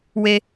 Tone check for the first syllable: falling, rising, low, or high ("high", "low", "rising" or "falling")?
high